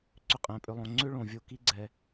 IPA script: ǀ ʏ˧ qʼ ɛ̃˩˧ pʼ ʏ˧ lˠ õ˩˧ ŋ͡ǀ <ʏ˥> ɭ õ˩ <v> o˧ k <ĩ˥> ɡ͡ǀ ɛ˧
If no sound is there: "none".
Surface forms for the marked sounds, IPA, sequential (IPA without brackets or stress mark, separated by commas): ʏ˥, vʲ, i˥